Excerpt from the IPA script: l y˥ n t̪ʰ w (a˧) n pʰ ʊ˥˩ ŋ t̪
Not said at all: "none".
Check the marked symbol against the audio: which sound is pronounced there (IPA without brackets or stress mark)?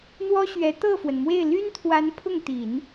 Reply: a˧˥